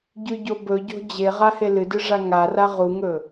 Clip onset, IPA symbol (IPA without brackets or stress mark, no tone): ɟ